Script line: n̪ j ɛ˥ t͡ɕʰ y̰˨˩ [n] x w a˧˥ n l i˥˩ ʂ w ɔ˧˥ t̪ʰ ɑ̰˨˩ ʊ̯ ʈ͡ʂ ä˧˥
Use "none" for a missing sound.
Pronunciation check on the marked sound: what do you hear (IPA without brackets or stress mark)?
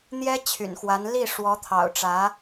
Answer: n